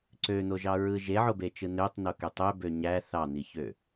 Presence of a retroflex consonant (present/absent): absent